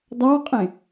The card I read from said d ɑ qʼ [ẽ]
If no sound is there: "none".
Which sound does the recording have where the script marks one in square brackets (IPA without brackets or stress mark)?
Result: ẽ